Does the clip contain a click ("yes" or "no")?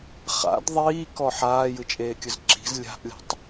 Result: yes